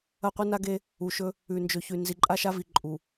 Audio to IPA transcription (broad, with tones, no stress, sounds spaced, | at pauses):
ɐ˦˨ qʷ ɨ˦ n a˦ ɡ e˦ | u˨ ʃ ɵ˦ | ʉ˨ n d͡ʒ ɵ˨ ç ʉ˨ n z i˨ ǃʼ a˦ ʃ a˦ v i˨ ǃʼ u˨